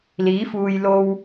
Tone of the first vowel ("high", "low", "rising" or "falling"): rising